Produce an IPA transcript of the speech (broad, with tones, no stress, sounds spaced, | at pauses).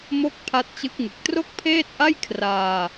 m o˥˩ k̚ pʰ a˦˥ t̚ t͡ɕ ɯ˦˥ k̚ ŋ ɯ˨˩ k̚ t r o˥˩ k̚ pʰ eː˥˩ t̚ ʔ a˥˩ j kʰ r aː˧